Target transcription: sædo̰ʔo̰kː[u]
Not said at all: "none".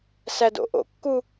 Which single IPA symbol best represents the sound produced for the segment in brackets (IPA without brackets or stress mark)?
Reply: u